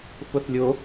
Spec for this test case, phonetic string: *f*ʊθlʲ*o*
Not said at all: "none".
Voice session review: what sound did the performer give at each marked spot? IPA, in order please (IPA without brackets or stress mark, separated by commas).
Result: f, o